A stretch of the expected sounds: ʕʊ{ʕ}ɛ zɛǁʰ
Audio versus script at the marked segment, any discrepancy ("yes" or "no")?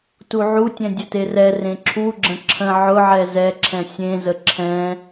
no